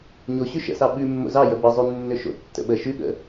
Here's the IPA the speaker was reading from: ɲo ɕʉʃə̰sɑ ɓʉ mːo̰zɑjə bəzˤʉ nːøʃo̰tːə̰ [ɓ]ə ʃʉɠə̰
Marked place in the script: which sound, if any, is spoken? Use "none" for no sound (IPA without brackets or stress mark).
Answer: ɓ